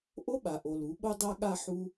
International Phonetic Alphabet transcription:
ʔ o˦ ɓ a˨ ʔ o˨ l u˨˦ ɓ o˦ dˤ a˦ ɠ a˦ ħ u˦

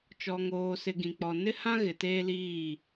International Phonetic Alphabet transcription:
t͡ʃ ɔ˨ ŋ oː˨ s ɪ˨ ɡ ĩ˨ k͡p ɔ˨ n ɪ˦ h ã˦ ɣ ɪ˨ t eː˦ l iː˦˨

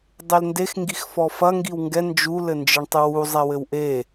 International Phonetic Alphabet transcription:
dˤ e l n d e x ŋ ɡ i x f ɔ f ɐ ŋ ɡ i w ŋ ɡ ɛ n d͡ʒ u l ɘ n d͡ʒ ɨ ɳ tˤ ɨ w u zˤ ɛ w ɘ w ʔ e

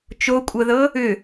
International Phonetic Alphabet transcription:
t͡ʃ o kʷʼ ɤ ð ɤ | ʏ

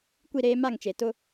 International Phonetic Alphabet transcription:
kʷ i˦˨ ɾ eː˦ m a˦˨ ŋ t͡ʃ e˨ t ʊ˦

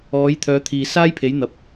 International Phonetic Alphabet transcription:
ɔː˨˥ j t̪ʰ œː˨˥ t̪ʰ iː˨ s aː˥ j pʰ e˨˥ j n̪ ɐ˨ p̚

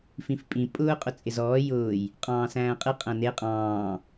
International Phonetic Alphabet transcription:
f ĩ f pʼ ĩ pʼ ʊː qʼ ʊ t͡sʼ ɪ z ɔː j ʊː j | qʼ ɑ̃ː s æ̃ː qʼ ɪ qʼ æ̃ n e qʼ ɑ̃ː

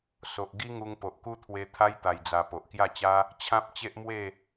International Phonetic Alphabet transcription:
s o˨ ʔ ɡ i˦ ŋ u˧ ŋ p o˨ ʔ k u˦ t̪ʰ w e˧ t̪ʰ a˦ j t̪ a˧ j d͡z a˧ p o˨ ʔ k j a˥˧ t͡ɕ a˦ | t͡ɕʰ ã˦ p̚ t͡ɕ e˦ ʔ m w e˥˧

